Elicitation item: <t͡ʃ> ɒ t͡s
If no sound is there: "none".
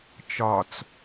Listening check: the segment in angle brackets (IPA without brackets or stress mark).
t͡ʃ